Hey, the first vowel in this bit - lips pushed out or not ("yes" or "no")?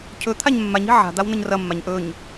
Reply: yes